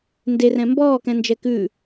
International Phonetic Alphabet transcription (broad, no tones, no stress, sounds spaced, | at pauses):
n d e r ɛ̃ m b ɔː k ɛ̃ n d͡ʒ ɛ k ʉ